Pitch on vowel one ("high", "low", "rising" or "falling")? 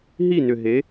falling